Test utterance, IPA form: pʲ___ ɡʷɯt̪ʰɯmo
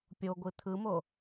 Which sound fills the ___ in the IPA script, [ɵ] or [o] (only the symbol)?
o